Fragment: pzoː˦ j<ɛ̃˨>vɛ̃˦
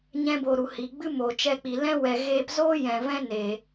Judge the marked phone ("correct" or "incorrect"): correct